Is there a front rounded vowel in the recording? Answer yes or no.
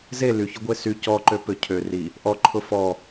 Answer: yes